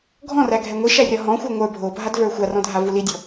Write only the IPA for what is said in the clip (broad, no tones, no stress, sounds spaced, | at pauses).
ɡʱ ɔ̃ r æ ɡʱ ɛ ŋʷ i ʃ æ rʲ ɒ ɦ ɔ̃ xʷ ə˞ ŋʷ ə˞ bʱ o bʱ a d v ə˞ xʷ a r ɔ̃ dʱ a v u l i dʲ ɔ